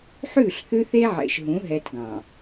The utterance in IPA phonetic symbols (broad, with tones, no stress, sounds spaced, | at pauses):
ħ ʉ˦˨ ɬ θ ʉ˦ θ e˦ ʕ ḛ˨ ʃ ɦ ũ˨˦ ɦ ɛ˨ t ɡ ɑ̃˨